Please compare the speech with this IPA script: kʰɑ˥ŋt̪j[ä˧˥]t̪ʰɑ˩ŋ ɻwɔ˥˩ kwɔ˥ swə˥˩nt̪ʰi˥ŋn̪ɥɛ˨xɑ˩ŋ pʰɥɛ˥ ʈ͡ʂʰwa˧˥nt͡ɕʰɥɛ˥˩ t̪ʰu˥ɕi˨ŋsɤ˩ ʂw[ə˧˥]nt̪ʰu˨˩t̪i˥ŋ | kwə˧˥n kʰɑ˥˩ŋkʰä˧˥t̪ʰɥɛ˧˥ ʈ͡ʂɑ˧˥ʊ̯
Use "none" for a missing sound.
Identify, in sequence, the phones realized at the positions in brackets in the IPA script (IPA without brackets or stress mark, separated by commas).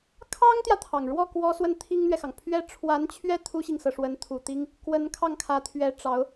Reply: ä˨, ə˧˥